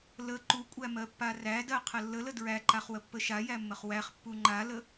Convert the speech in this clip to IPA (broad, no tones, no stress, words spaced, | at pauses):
lə ǃukʷʼæmɜpːa rædɜqʰə lːələ dɹæǃaχwəpːə ʃajæmːəχ wæχpːu ŋ͡ǃalə